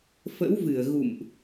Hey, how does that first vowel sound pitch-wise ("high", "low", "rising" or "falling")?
rising